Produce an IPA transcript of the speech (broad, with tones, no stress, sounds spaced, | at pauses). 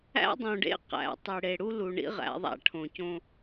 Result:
æ̰˦ dˤ õ˨ ɖ ḛ˦ q æ̰˨ tˤ i˨ ɽ e˨ ɽ u˦ l u˨ ɳ ḭ˦ ʁ æ̰˨˦ ðˤ æ̰˦ ʈʰ õ˨ c õ˦